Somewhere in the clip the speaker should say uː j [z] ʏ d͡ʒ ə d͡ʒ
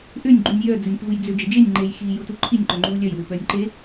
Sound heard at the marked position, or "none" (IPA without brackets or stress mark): d͡z